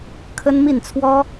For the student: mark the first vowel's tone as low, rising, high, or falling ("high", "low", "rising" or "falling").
high